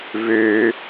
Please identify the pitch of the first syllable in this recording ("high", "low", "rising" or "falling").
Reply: high